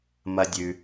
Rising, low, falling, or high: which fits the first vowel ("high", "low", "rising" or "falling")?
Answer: high